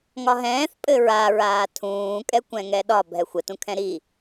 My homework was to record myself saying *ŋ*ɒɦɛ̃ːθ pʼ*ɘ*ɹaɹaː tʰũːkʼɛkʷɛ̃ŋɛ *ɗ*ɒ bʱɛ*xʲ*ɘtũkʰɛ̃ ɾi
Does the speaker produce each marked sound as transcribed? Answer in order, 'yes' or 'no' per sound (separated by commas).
yes, yes, yes, no